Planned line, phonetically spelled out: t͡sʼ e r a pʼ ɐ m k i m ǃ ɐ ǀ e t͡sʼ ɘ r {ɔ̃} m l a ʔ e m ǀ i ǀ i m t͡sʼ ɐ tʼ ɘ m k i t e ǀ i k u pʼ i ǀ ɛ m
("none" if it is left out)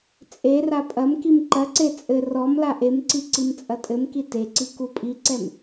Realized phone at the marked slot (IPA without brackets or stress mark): ɔ